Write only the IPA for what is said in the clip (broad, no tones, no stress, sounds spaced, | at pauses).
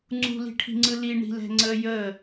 ŋ͡ǀ ṳ l i̤ ʈʰ i̤ ŋ͡ǀ ɯ l i ɳ i̤ l ɛ̤ ŋ͡ǀ ə j ə